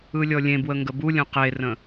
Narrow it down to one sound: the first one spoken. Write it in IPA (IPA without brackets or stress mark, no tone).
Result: ɯ